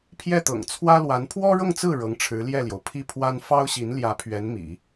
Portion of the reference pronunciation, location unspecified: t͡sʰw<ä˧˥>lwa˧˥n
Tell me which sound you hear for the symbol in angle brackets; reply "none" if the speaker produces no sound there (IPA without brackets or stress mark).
ä˥